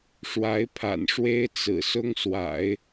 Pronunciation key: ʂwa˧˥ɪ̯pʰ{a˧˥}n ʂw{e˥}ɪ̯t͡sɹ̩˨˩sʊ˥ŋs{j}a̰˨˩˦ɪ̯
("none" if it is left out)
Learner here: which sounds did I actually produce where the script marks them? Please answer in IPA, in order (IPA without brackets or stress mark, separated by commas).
a̰˨˩, e˥, w